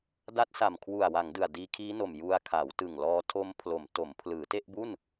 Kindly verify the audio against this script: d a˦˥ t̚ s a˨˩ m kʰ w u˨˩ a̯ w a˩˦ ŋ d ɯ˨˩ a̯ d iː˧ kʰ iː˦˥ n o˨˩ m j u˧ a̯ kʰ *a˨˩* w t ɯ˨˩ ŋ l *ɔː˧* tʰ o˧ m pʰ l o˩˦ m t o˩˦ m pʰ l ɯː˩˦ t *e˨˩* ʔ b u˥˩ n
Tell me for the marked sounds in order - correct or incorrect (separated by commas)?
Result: incorrect, correct, incorrect